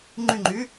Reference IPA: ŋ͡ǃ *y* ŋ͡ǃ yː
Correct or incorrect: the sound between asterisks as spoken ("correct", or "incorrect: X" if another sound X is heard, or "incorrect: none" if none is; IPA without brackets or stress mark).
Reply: correct